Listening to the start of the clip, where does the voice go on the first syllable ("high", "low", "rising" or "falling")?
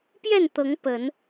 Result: falling